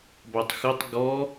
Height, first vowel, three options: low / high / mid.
low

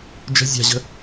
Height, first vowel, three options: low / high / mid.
mid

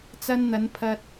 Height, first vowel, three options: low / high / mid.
low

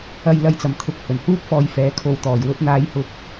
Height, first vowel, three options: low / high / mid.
low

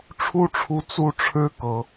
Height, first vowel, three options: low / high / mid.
high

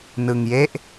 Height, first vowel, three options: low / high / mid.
high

